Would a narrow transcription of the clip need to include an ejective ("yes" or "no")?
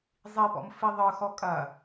yes